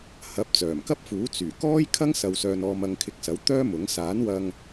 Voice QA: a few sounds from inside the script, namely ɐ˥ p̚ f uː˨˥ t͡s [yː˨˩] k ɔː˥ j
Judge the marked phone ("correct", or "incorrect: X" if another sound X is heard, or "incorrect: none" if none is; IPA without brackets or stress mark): correct